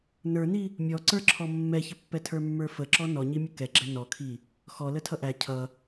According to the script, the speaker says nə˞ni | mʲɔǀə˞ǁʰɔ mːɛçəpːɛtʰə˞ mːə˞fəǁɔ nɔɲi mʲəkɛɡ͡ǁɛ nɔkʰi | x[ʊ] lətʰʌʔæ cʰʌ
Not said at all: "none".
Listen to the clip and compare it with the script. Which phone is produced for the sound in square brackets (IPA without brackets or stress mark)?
ɔ